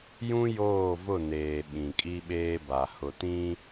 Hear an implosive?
yes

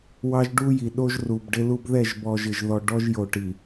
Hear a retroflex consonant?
yes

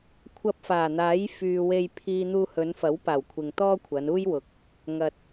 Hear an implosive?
no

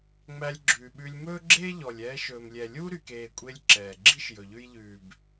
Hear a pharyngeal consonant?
no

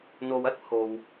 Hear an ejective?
no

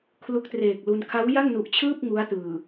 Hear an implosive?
no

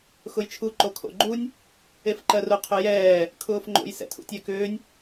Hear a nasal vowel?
no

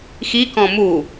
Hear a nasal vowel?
yes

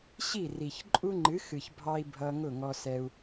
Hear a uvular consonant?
no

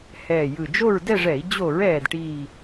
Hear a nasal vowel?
no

